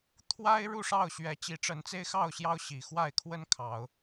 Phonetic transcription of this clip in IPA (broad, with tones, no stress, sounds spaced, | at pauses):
t̪ʰ w a˦ ɪ̯ ɻ u˥˨ ʂ ɑ˥˨ ʊ̯ ɕ ɥ ɛ˨˦ t͡ɕ i˨˦ ʈ͡ʂ ə˨˦ n t͡s e˦ ɪ̯ x ɑ˥˨ ʊ̯ ɕ j ɑ˦ ʊ̯ ɕ i˨˩ x w a˥˨ ɪ̯ kʰ w ə˦ n kʰ ɑ˨˦ ʊ̯